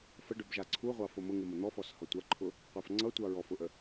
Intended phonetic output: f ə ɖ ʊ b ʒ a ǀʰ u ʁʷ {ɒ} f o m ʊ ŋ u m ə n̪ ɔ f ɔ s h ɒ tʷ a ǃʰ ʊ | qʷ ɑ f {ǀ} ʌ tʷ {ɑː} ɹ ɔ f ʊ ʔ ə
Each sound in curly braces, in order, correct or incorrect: incorrect, incorrect, incorrect

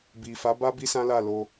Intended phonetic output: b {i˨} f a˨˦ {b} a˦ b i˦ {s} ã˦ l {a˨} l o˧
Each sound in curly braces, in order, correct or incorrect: correct, correct, correct, incorrect

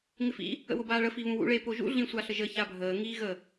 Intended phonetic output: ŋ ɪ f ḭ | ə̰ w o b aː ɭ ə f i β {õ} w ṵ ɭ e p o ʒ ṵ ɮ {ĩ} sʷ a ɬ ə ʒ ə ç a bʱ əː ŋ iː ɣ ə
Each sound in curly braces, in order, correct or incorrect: incorrect, correct

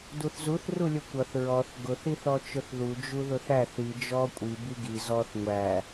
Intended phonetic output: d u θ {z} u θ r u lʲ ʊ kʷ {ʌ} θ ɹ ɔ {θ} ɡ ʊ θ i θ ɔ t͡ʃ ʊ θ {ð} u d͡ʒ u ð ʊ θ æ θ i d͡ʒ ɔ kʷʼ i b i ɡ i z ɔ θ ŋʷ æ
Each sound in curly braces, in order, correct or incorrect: correct, correct, correct, correct

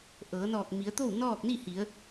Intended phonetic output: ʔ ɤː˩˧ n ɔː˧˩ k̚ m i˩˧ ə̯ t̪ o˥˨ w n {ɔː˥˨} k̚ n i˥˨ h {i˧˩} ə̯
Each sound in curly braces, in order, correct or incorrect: correct, incorrect

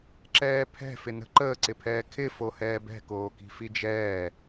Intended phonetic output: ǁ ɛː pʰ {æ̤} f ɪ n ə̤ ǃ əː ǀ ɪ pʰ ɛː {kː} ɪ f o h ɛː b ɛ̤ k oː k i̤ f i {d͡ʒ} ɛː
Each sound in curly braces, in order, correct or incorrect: incorrect, incorrect, correct

